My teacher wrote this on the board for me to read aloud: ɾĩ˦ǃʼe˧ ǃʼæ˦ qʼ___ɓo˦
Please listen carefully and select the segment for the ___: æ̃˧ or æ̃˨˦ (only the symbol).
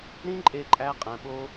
æ̃˧